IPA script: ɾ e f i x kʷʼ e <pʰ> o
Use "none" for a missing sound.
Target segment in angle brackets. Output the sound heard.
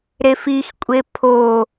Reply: pʰ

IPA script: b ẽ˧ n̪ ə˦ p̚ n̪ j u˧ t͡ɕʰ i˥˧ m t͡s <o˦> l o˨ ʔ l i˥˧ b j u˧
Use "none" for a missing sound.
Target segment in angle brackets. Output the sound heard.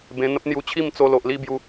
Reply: o˧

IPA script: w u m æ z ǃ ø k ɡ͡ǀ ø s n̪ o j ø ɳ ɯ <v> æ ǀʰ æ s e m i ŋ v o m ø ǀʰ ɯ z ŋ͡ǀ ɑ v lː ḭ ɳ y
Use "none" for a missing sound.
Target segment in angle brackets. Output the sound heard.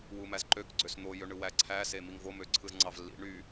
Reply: w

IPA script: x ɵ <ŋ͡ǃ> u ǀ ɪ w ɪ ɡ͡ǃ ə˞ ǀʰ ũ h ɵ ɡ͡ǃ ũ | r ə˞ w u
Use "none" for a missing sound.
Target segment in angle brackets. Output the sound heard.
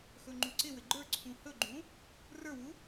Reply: ŋ͡ǃ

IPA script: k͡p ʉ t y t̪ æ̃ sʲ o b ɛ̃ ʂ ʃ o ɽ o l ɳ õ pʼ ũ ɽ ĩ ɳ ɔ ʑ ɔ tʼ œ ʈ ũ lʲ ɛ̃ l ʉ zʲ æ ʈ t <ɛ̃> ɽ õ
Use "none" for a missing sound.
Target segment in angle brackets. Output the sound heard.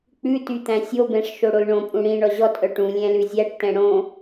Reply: ɛ̃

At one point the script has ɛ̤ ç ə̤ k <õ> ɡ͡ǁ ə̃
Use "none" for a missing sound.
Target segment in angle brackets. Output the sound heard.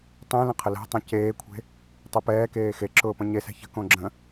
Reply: õ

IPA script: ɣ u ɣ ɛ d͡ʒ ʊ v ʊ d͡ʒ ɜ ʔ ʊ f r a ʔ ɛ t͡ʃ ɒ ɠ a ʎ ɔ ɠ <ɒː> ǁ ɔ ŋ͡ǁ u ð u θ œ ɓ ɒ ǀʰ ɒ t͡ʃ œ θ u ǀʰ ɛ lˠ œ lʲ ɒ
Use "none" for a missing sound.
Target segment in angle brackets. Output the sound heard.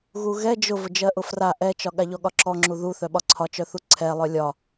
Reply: ɒ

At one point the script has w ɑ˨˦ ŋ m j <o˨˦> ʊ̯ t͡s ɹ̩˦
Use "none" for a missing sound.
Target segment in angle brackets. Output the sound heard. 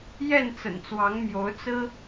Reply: o˨˦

